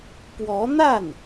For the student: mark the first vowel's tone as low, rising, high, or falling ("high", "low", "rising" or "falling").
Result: rising